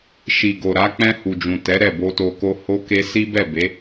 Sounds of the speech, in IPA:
ʃ i˨ ɡ o˨ ɾ a˨˦ k͡p ɛ̃˧ h u˨ d͡ʒ ũ˨ t ɛ˨˦ ɾ ɛ˦˨ b o˧ t o˧ k o˦ h o˦ k e˦ s i˦ b ɛ˦˨ b e˨˦

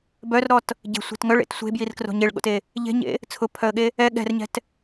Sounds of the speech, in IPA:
b œ r ɾ ɔ t | ɟ e̤ sʷ e̤ t ŋ œ ɭ ḛ t sʷ e̤ b j i r k r o̤ ɲ e ɭ ɠ o̰ t e | ʎ e̤ ɲ ḛ | t͡sʰ ʊ pʰ œ ə̯ ɠ e | ɛ ɠ ɛ̤ r ɲ ɛ̤ t

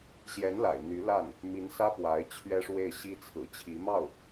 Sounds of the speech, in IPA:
ɕ j ɛ˧˥ n l a̰˨˩ ɪ̯ n̪ y˧˥ l a˥˩ n | m i˧˥ n s ä˥ p w a˧˥ ɪ̯ t͡ɕʰ ɥ ɛ˥ ʂ w e˥˩ ɪ̯ ɕ i˥ t͡sʰ ɹ̩˨˩ t͡ɕʰ i˧˥ m ɑ˥˩ ʊ̯

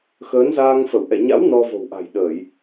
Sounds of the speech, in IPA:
x əː˨˦ n z aː˧ ŋ f ə˧˩ w ʔ ɛ̰˧˨ ɲ a̰˧˥ w n ɔ˧ v o̤˨˩ w ʔ a̤˨˩ j ɗ əː˧˩˨ j

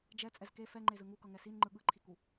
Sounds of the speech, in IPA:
d͡ʒ ɛ t͡sʼ ɛ z k e f ɛ ŋ͡ǃ e z ɯ ŋ u k ʌ ŋ ɛ s i n ŋ͡ǃ ɯ ɠ ɯ ǃʰ i k u

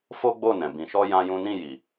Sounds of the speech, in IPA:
f o˦ ɡ͡b o˦˨ n ɛ̃˨ b ĩ˨ ʃ ɔ˧ j ã˦ j ũ˦ n ĩ˦˨ j i˨

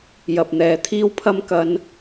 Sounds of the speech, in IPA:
j ɐ˨ p̚ n̪ ɛː˨ t̪ʰ iː˥ w pʰ ɐ˥ m k ɐ˥ n

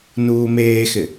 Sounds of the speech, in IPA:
n uː m eː x ɪ

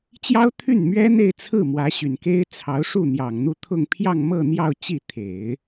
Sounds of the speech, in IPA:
t͡ɕ j ɑ˥ ʊ̯ t̪ʰ y˥˩ n m ɥ ɛ˥ n̪ e˥˧ ɪ̯ t͡sʰ ɹ̩˥˩ m w ä˧˥ ɕ y˨˩ n k e˥ ɪ̯ t͡sʰ ɑ˧˥ ʊ̯ ʂ u˥˩ n̪ j ɑ˨˩ ŋ n̪ u˥˧ t̪ʰ ʊ˥˧ ŋ pʰ j ɑ˥˧ ŋ m ɤ˥˧ n̪ j ɑ˥˧ ʊ̯ t͡ɕ i˥˩ t̪ʰ e˨˩˦ ɪ̯

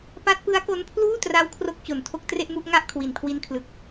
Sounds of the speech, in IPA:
p a˦˥ t̚ p ɯ˦˥ a̯ k o˦˥ n pʰ l uː˥˩ t r a˦˥ w kʰ r o˥˩ k̚ t͡ɕ o˨˩ n tʰ o˥˩ k̚ t r e˥˩ ʔ m u˥˩ ʔ ŋ a˥˩ ʔ kʰ w i˨˩ n kʰ w i˦˥ n kʰ l ɯ˨˩ k̚

